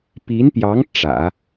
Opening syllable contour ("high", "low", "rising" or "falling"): rising